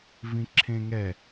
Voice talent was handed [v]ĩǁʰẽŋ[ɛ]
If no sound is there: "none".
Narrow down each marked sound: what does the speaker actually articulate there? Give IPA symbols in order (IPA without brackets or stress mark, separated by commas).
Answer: v, ɛ